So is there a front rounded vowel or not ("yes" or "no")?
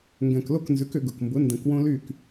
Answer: yes